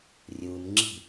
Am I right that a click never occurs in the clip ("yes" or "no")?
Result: no